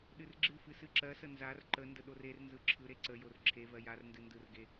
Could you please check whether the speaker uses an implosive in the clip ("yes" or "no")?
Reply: yes